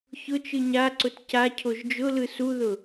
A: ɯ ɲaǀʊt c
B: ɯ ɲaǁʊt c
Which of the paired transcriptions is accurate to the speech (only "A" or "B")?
A